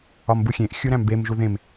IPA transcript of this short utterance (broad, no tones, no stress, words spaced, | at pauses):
ɒmbuxʲẽʔ xʲuɾæ̃mbem ʒuðẽm